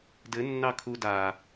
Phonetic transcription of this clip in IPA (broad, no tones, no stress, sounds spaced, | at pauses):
d ɘ nː ɑ kʰ u d a